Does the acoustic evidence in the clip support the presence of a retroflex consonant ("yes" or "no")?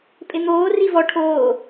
yes